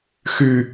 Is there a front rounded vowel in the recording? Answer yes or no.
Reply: yes